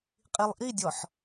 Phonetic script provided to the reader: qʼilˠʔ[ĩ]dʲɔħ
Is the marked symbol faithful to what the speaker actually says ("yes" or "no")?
no